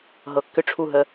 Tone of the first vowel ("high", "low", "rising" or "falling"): low